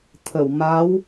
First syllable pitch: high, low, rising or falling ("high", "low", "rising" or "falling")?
low